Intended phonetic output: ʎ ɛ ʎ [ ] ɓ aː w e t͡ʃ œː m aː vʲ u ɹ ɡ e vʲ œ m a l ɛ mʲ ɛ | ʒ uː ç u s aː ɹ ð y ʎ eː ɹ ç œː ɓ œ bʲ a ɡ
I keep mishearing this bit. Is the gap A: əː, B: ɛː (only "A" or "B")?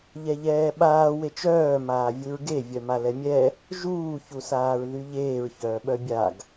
B